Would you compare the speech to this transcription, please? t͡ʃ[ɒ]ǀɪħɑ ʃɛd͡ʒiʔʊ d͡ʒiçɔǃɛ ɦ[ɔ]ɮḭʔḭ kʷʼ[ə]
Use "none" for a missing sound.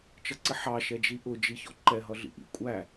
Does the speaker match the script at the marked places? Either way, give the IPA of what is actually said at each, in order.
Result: ʌ, ʌ, æ

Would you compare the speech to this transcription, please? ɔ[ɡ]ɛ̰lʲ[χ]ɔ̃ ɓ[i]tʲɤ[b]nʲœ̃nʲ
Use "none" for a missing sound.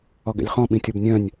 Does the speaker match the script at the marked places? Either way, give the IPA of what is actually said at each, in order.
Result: ɡ, χ, ĩ, b

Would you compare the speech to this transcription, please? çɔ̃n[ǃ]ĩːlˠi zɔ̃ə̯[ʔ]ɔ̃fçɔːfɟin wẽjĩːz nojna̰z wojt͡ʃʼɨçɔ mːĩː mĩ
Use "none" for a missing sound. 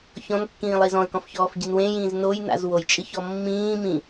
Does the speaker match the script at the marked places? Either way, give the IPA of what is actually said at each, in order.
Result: kː, k

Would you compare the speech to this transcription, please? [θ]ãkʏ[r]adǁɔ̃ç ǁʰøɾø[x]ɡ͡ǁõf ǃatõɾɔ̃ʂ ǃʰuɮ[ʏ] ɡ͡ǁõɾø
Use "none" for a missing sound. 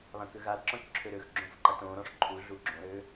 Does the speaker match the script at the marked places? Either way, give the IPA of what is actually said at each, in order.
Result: β, ɣ, x, u

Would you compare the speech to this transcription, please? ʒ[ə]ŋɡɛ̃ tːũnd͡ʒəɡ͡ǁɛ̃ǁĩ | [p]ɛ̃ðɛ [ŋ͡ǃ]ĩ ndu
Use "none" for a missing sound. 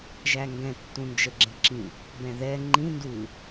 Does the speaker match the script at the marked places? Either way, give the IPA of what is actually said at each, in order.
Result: æ, b, ŋ͡ǃ

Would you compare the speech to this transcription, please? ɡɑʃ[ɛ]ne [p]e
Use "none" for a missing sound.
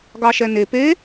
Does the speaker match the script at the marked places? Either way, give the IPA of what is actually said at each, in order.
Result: ɛ, p

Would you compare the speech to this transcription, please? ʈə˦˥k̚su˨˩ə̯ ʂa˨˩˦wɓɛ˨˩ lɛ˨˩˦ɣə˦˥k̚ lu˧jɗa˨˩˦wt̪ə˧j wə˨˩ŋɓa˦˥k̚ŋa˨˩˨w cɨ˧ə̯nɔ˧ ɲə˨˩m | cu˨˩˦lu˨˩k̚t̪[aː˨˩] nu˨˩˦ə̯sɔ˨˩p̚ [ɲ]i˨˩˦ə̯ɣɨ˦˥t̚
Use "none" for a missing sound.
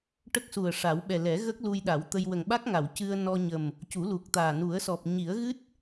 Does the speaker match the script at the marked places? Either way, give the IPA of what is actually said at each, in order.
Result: aː˨˩, ɲ

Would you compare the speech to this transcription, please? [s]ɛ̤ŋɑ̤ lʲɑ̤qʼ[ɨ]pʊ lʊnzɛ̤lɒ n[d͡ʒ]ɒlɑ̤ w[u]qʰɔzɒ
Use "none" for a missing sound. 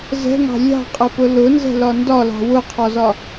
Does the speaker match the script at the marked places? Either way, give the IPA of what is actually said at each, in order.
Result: z, ə, d, ʊ

